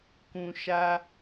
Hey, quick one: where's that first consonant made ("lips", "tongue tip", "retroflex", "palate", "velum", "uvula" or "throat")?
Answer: velum